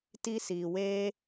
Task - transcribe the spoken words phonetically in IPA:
t i˦ s iː˧ w eː˦

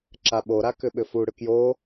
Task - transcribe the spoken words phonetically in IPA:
ǁ a ɓ o ɾ a k ʏ ɓ ʏ f u ɽ ʏ k j o

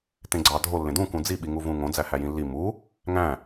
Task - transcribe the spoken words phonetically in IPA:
t ẽ ɡ͡ǀ ɑ dʱ o lː ẽ d ũ k ũ d͡z i ɓ i ŋ u v ũ ŋ õ d͡z æ h æ j ĩ lː i m u | ŋ æ̃

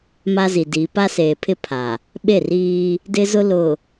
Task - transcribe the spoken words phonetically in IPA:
m a˦ z i˨ d i˨˦ p a˦ s eː˨ pʰ ɪ˦ pʰ a˨ | ɓ e˦˨ r iː˦ | d ɪ˦ z ʊ˦ l ʊ˨

